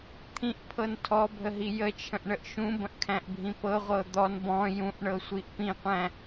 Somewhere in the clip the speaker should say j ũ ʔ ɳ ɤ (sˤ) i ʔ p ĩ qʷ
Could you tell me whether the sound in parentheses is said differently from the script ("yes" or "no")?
yes